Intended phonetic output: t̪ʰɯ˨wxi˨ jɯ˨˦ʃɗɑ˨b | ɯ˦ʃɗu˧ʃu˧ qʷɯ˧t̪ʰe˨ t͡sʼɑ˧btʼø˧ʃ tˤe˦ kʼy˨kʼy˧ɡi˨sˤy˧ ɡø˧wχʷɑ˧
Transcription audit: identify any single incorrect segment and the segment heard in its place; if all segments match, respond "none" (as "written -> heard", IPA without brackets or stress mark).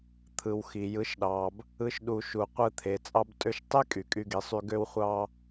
none